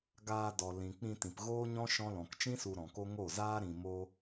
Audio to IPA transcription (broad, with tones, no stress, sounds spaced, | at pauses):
ɡ aː˧ d ɔ˨ l ĩ˨ k͡p ĩ˧ t ĩ˨ p ɣ oː˦ ɲ ɔ̃˦ ʃ ɔ̃˦ l ɔ̃˨ k t͡ʃ ĩ˦ s u˧ ɾ ɔ̃˨ k o˦ ŋ o˦˨ z aː˦ ɾ ĩ˧ m o˦